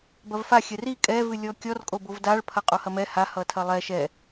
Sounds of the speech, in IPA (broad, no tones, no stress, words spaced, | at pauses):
bɐvfaxʲɛ ri kʼɛvɨlʲɔ kʲɔrkʼo bovdaɭpʰɐ qʼohɐmɛ ha hʌtʰɐlˠɛ ʃɛ